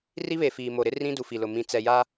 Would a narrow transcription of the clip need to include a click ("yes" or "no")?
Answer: no